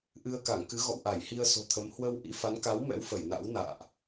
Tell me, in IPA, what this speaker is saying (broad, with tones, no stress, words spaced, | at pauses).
ʔɨ˧ə̯ka˧˩ŋkɨ˨˦ ɣɔ̰˧˨wʔa˧˩jhi˧ə̯ so̤˨˩t̪ʰə˨˦m hwə˧wʔḭ˧˥fa˨˦n ka˨˦wmɛ̰˧˥w fə˧˩jna̰˧˥wna̰ː˧˨ʔ